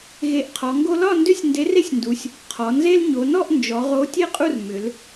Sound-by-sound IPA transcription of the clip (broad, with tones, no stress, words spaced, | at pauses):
ɣe˨˥ʔqʰɔ˩˧ŋɡo˦ lɒ˥˨ndʏ˦sʲ nde˨˥re˦sʲndu˩˧sʲ | qʰɔ˩˧nze˦l ɲo˩˧nɔ˥˨ʔ nd͡ʒɔ˩˧ʁo˨˥ tʲe˥˨qʼu˥˨r mʏ˩˧l